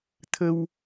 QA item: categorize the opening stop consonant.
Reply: aspirated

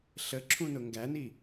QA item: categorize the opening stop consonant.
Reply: click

